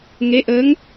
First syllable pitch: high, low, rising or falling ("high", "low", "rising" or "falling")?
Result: rising